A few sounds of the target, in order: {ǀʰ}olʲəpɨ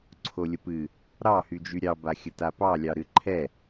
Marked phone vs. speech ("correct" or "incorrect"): correct